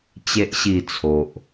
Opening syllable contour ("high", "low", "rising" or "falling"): low